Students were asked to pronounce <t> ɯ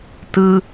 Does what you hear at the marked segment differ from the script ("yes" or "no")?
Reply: no